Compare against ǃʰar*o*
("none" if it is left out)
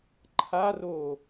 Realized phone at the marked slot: o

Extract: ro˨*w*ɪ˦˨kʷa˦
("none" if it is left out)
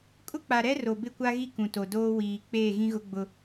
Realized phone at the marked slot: b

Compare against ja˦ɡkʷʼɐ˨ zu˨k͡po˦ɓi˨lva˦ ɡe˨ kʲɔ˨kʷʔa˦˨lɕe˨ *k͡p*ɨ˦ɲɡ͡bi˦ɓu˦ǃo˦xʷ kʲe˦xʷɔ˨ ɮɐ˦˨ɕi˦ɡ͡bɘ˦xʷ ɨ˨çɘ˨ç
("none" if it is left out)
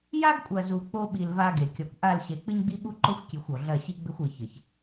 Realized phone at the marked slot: k͡p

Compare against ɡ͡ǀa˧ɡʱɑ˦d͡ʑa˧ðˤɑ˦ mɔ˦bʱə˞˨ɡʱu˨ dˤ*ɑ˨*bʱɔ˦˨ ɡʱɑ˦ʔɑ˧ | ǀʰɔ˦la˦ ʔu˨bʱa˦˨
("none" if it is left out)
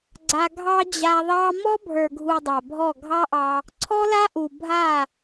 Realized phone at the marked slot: a˨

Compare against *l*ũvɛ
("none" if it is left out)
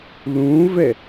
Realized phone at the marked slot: l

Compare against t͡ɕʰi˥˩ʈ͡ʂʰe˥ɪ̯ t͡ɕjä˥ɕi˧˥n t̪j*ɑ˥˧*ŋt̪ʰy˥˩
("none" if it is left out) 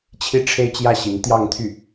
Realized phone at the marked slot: ɑ˥˧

